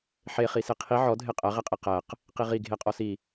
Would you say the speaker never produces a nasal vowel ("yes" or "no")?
yes